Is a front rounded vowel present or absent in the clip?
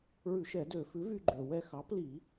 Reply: present